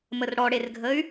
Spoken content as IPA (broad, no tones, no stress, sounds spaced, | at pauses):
m ə r ɽ ɔ ɽ e r ɡʱ ə y̯